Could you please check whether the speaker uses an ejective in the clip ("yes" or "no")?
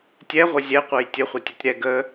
no